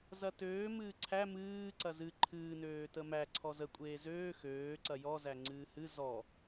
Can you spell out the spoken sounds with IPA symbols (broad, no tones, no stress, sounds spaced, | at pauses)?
z ɐ t øː m ɨː ǀʰ æ m ɨː ǀ ɐ z ɨ ǃʰ ɨː n øː t ə m æ ǀʰ ɔ z ə kʷʼ eː z øː x øː ǀ ɐ j ɔ z æ ŋ͡ǀ ɨː h ɨ z ɔ